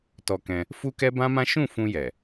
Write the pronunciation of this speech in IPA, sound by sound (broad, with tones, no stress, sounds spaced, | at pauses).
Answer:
t ɔ˧ k ɛ̃˧ | f u˦ k ɛ˦ b ã˦ m ã˦ ʃ ũ˦˨ f ũ˧ j ɛ˨